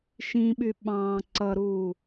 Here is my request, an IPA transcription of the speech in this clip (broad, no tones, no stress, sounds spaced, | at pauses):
ʃ ĩ ɓ y ɓ ɑ̃ː ǀ ʌ ɾ uː